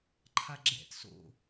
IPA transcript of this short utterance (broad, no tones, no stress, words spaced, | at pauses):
ǃʰaɡ͡ǁɛ̰t so̰